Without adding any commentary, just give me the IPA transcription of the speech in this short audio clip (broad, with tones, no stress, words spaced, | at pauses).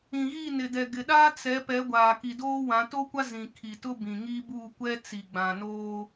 ĩ˨ɣi˦˨nɪ˨ dɛ˨ɡɪ˨ɗaː˦ t͡sɛ˨˦ pɛ˨˦ɡʷaː˨ ki˨doː˦wã˨˦ to˦kʷa˦ zĩ˨ kʰi˨tʊ˦bĩ˨ŋi˦ buː˦˨kʷɛ˦ t͡si˨ɡ͡bã˨noː˦